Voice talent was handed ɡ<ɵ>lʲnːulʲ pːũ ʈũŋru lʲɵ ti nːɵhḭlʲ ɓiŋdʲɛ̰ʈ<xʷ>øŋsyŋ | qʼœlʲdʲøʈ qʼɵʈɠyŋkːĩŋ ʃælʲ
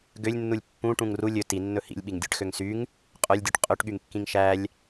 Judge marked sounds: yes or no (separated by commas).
no, no